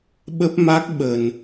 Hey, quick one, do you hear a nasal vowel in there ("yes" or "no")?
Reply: no